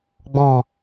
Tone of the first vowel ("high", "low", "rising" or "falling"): low